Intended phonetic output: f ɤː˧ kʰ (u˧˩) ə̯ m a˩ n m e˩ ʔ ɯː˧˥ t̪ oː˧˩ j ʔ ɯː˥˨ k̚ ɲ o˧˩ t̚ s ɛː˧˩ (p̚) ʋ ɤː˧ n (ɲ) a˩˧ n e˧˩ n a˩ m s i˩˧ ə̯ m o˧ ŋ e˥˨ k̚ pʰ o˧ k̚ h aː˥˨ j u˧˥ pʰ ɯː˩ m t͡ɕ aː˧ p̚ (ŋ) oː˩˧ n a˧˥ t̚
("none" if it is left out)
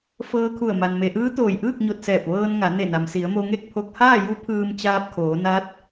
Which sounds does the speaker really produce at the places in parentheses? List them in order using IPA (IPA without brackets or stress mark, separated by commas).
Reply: u˧˩, p̚, ŋ, kʰ